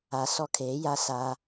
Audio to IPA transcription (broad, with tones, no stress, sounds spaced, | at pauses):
a˨ s ɔ˦ kʰ e˨˦ j a˦ s a˦